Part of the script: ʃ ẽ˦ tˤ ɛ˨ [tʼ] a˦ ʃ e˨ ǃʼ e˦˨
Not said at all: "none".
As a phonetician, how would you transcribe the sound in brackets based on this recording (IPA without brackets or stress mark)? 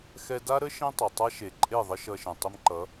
tˤ